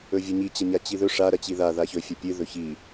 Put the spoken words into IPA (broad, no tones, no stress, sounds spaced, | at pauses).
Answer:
ɵ vʲ ɐ ɲ i t͡ɕ ɐ ɲ a t͡ɕ i ð ɵ ʂ a ɾ ɐ t͡ɕ i ð a ð a ç ɵ fʲ ɐ pʲ ɨ ð ɵ ç i